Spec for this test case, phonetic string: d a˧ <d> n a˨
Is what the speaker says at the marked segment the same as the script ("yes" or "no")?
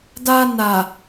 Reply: no